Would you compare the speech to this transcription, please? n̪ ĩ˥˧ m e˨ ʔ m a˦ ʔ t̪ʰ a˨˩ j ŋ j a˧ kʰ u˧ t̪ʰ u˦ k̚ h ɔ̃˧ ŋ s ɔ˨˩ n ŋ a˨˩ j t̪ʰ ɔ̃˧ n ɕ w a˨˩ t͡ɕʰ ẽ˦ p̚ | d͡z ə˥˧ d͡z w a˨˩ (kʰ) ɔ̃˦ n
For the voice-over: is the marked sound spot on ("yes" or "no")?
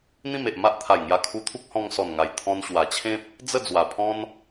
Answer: no